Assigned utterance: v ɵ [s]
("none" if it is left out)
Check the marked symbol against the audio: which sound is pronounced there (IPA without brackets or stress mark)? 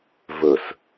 s